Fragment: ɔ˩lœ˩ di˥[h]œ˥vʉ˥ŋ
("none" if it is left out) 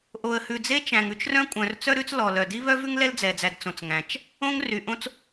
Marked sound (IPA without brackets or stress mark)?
β